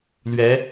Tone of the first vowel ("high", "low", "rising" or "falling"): rising